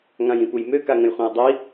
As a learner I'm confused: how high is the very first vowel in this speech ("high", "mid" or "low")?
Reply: low